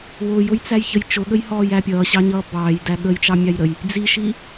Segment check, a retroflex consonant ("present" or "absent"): absent